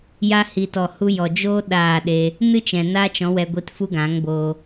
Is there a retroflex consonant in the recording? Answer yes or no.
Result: no